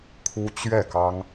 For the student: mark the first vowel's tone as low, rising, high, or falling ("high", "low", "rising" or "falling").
high